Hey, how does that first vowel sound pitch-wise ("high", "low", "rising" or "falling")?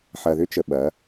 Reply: low